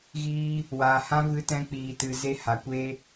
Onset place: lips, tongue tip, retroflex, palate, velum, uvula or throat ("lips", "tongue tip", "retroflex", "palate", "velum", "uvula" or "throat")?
velum